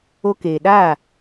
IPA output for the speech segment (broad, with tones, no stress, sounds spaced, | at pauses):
o˧ k eː˨ ɗ aː˦˨